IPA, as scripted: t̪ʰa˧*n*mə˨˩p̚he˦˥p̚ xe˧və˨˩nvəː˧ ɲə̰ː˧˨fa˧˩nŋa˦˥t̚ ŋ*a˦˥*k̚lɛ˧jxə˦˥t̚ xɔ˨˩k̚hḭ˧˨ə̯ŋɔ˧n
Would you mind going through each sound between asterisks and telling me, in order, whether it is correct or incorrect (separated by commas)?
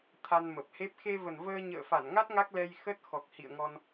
correct, correct